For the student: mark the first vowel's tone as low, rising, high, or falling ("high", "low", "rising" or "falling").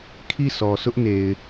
falling